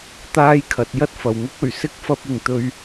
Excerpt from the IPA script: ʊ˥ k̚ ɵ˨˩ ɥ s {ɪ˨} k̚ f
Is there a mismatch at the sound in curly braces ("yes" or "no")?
yes